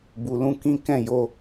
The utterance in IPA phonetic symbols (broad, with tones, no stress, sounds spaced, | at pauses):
b u˨ l ũ˧ k ĩ˦ k ɛ̃˦˨ j o˧